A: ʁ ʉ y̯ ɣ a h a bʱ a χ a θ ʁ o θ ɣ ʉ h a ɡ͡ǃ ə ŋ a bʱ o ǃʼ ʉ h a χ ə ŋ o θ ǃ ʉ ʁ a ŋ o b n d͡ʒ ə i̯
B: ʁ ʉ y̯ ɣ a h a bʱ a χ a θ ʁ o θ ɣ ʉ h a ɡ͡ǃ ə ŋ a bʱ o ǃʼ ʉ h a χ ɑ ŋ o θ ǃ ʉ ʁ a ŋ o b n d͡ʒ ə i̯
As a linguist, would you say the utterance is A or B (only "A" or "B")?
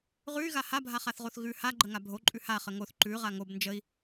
A